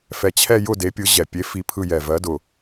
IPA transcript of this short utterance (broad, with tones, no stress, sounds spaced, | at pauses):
f ɛ˧ t͡ɕʰ ɛ˥˧ j ʊ˥˧ d e˨˥ pʲ ɯ˨˥ ʑ ɛ˨˩ pʲ e˨˥ f i˦˥ pʰ ɯ˥˧ j ɛ˨˩ v ɜ˨˥ d ʊ˨˩